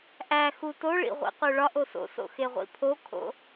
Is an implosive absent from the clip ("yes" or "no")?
yes